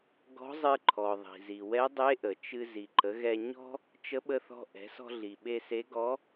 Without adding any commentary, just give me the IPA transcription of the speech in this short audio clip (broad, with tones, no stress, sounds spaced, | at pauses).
ɡ ɔ̤˧˥ zˤ ɨ˧ ǃʰ ɔ˩ ðˤ i̤˩ z i˩ w ɛ˧˥ dˤ e˧˥ ʔ ə˩ t͡ʃ ɨ˧ z i˩ ǃ ə˩˧ ɣ ɛ˧ ɲ ɔ̤˥ | t͡ʃ ə˧˥ ɓ ə˧ θ ɔ̤˧ ʔ ɛ̤˩˧ s ɔ̤˧ ɮ i˩ ɓ e˧ s e˧˥ ɡ ɔ˧˥